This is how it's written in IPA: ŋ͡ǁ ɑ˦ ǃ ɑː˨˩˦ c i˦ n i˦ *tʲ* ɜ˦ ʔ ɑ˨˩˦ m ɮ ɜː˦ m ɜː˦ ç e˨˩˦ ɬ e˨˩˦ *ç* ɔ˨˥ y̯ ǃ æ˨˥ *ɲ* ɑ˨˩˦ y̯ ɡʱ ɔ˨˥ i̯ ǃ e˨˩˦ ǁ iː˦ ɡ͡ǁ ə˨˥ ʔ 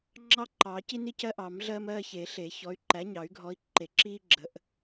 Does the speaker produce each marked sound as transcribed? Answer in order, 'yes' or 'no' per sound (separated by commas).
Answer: no, yes, yes